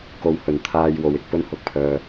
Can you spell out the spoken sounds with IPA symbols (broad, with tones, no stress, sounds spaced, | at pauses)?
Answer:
k o˨ w h ɵ˨˩ n t̪ʰ aː˧ j w o˨ w ɪ˨ k̚ p ɵ˥ n h ʊ˨ k̚ pʰ œː˨